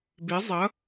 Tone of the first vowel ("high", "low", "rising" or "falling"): rising